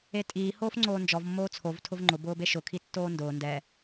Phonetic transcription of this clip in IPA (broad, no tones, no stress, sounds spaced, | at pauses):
e tʼ iː h oː f ŋ͡ǀ oː n d͡ʒ ɔ v mː oː t͡sʰ o v tʰ ʊ v ŋ͡ǃ ʊ b ʊː b e ʃ ʊ kʰ i tː oː n d ʊː n d ɛ